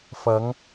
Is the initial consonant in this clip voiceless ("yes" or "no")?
yes